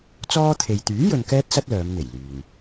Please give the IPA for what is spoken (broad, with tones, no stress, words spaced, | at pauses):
t͡sɔː˥t̪ʰe˨j t̪yː˨˥ jɵ˧nkɛː˥t̚sɐ˥t̚ lœː˨˧mn̪e˨˩j lyː˨n